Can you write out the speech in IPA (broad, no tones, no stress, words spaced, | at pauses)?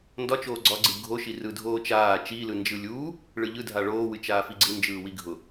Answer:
ndɒ t͡ʃoːɡ͡ǀɒɡ͡ǀɯ ɡʱoʃi rɯdʱoːt͡ʃaː t͡ʃilɯ nd͡ʒɯlʲuː | ɭɯʎɯ dʱaɭoː wɨt͡ʃaːfiɡ͡ǀɨ nd͡ʒɯːwiɡʱʊ